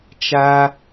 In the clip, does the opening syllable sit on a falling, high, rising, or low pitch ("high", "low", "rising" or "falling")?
high